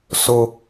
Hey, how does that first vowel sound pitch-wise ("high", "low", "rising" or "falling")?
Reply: high